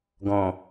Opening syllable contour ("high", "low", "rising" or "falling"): low